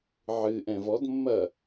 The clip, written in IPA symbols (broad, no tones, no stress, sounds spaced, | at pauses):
ʕ ɨ ʔ ɛ̃ v ɔ d mː ɐ